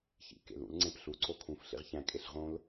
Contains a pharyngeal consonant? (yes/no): no